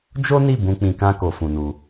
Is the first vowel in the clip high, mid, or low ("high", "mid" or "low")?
mid